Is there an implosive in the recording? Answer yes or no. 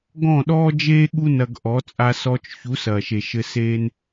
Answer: yes